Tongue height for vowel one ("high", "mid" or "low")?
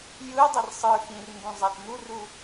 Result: high